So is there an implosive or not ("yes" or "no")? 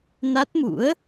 no